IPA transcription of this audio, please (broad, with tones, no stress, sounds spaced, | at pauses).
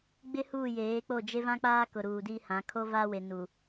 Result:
ɡ͡b ɪ˦ h uː˦˨ j eː˨˦ k͡p o˦˨ d͡ʒ e˦ v ã˦ k͡p aː˦ k ʊ˨ ɾ uː˨ d i˦ h ã˨˦ kʰ o˦ v aː˦ w e˨ n u˨